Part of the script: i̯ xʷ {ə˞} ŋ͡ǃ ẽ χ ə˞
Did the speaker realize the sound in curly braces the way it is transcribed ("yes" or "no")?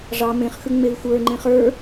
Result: yes